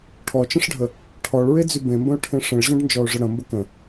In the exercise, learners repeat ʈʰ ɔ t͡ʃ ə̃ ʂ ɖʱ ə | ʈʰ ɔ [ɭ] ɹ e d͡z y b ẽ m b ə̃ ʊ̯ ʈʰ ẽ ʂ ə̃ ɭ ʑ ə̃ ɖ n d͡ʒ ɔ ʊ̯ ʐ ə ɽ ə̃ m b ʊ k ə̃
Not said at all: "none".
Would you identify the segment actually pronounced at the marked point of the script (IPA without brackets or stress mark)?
ɭ